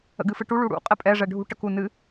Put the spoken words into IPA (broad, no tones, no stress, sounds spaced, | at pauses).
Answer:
ə̰ ɡ ɨ f ɨ ʈ u ɭ u ɽ ṵ qʼ ɛ pʼ ɛ ʐ ɛ ɖʱ ṳ ʈ ə k u n ɨ